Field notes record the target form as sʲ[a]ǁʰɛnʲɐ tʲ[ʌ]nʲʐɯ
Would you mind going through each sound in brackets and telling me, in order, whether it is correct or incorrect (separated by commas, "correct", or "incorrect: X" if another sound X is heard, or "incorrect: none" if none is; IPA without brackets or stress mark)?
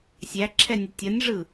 incorrect: æ, correct